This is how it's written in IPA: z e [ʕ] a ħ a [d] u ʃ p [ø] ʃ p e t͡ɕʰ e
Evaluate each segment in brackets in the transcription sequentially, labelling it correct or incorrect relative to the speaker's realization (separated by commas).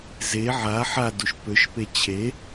correct, correct, correct